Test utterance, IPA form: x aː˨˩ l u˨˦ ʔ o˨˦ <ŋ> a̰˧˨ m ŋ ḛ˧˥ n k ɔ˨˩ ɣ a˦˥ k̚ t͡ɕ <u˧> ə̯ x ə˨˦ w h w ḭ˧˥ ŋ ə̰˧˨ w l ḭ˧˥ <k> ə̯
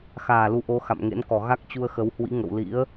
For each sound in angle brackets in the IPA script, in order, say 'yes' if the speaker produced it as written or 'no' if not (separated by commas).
no, yes, no